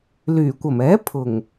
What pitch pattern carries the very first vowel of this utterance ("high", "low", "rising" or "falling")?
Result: low